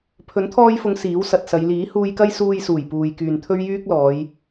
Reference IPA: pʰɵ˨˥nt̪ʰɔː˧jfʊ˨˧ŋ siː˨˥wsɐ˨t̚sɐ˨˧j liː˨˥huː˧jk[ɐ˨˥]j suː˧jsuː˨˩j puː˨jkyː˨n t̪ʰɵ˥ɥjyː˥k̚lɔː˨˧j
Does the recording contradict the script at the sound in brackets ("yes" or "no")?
yes